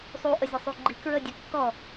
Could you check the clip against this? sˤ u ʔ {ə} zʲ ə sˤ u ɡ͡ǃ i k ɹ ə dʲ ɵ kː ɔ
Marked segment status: correct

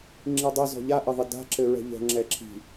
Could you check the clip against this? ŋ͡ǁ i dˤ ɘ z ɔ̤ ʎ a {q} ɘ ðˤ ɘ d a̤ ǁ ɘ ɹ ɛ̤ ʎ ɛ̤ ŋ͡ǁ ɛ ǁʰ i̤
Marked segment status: incorrect: ʔ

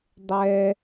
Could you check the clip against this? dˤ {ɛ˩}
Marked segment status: correct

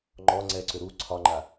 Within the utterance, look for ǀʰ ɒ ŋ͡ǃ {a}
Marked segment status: correct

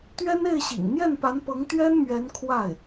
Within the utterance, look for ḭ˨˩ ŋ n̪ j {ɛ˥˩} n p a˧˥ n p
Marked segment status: correct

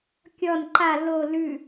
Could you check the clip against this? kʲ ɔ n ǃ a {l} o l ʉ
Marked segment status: correct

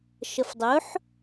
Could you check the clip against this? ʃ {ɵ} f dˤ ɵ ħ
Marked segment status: incorrect: ə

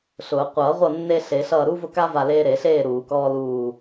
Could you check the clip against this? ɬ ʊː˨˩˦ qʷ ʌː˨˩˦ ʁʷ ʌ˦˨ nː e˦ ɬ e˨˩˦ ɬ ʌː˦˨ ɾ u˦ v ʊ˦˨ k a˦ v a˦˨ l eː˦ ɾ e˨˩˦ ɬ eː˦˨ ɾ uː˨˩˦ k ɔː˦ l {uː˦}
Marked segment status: incorrect: uː˦˨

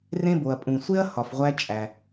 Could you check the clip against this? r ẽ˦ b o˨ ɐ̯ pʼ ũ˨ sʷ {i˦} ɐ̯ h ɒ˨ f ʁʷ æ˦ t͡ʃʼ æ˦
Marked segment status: incorrect: e˦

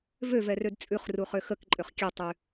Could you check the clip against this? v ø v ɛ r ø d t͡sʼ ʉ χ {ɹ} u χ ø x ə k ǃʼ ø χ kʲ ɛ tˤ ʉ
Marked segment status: incorrect: r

